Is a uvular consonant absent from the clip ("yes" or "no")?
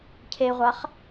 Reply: no